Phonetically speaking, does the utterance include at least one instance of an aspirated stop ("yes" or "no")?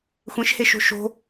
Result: no